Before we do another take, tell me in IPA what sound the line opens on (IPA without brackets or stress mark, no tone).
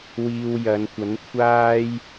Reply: w